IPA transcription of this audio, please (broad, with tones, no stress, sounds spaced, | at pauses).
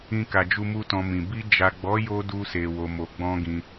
ĩ˧ k a˨ d͡ʒ u˧ m u˧ t ɔ̃˧ m ĩ˨ b i˧ d͡ʒ a˨ ɡ͡b ɔ˨˦ j o˧ d u˧ s e˨ w o˨ m o˨ ɡ͡b ɔ̃˧ ɡ ĩ˧